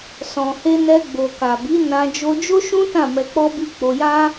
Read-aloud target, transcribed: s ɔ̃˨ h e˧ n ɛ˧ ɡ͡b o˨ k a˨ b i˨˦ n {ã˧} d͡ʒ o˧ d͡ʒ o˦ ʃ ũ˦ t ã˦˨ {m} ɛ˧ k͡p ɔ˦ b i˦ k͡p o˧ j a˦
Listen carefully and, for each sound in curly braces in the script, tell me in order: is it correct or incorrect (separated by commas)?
correct, correct